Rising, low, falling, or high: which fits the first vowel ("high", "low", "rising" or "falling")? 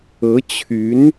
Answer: rising